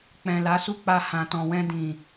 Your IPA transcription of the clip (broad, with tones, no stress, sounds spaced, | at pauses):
k͡p ɛ̃˨ l a˨˦ s u˦˨ k͡p a˧ h ã˨ t ɔ̃˨ w ɛ̃˧ d ĩ˨